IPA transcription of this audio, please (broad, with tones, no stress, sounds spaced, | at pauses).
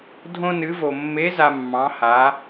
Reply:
dʱ õ˥ n ɨ˧˥ v o˧ mː e˧˥ z a˧ mː ɑ̃˧˥ h a˧˥